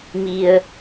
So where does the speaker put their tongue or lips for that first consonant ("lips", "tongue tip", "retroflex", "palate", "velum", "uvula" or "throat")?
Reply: lips